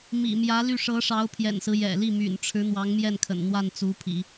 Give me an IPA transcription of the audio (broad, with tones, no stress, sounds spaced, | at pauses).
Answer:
m ḭ˨˩ m j ä˧˥ l y˥˩ ʂ ɤ˧˥ ʂ ɑ˧˥ ʊ̯ pʰ j ɛ̰˨˩ n s ɹ̩˦ j ɛ̰˨˩ l i˥˩ m y̰˨˩ n ʈ͡ʂʰ ɻ̩˧˥ n̪ w ɑ˧˥ ŋ m j ɛ˥˩ n kʰ ə̰˨˩ n n̪ w a˥˩ n t͡s u˧˥ pʰ ḭ˨˩˦